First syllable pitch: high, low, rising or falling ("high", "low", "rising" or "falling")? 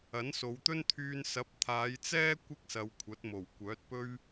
rising